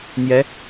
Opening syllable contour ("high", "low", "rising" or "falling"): rising